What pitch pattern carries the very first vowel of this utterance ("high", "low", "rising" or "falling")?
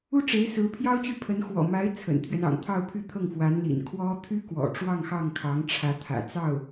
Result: high